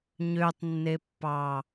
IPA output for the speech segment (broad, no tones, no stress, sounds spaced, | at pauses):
ɲ ø tˤ nː e pː ɑ